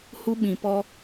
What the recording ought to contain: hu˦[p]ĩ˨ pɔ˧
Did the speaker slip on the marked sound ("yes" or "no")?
yes